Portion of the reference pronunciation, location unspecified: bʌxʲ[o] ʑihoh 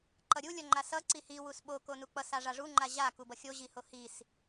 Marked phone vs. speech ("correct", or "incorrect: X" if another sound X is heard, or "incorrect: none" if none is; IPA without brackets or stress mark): correct